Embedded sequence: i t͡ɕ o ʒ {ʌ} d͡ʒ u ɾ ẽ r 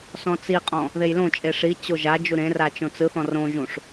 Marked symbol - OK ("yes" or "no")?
no